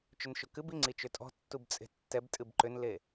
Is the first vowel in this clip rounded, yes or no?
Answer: yes